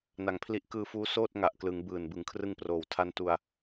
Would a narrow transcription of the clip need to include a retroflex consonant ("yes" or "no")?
no